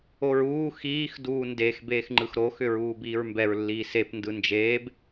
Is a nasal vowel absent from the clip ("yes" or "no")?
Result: yes